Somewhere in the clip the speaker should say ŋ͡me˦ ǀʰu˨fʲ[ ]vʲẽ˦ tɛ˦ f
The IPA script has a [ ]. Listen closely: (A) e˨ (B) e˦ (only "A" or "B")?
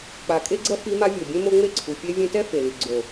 B